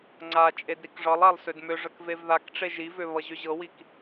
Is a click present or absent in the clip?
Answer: present